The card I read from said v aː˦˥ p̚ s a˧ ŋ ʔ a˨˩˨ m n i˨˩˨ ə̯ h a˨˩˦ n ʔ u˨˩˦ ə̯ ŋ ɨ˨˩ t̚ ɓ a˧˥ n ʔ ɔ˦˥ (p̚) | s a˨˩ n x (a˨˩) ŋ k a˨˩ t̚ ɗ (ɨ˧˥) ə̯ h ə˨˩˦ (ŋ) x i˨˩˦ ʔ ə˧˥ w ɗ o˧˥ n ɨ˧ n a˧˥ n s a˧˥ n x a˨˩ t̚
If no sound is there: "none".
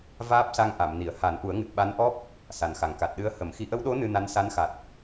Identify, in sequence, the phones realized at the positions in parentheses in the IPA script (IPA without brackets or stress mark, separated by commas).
p̚, a˨˩, ɨ˧˥, m